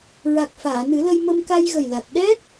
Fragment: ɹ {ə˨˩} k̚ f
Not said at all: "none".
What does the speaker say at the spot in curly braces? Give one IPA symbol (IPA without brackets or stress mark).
a˨˩